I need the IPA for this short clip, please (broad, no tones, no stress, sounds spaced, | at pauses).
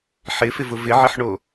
ħ ɪ f ɪ v ʊ v ɪ ʕ ɪ ħ ɳ o